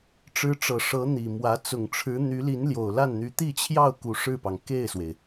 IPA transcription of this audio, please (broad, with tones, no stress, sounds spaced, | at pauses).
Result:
ʈ͡ʂ ɻ̩˧˥ ʈ͡ʂ ɤ˨˩ ʂ ɤ˧˥ n̪ i˨˩ m w ä˧˥ t͡s ʊ˨˩ ŋ ʈ͡ʂʰ ɻ̩˧˥ n̪ y˧˥ l i˧˥ n l j o˨˩ ʊ̯ l a˥˩ n n̪ y˧˥ t̪ i˥˧ t͡ɕʰ j ɑ˥˩ ʊ̯ k u˧˥ ʂ ɻ̩˥˩ p ɑ˩ ŋ k e˥˩ ɪ̯ s w e˩ ɪ̯